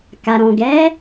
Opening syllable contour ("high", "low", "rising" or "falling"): low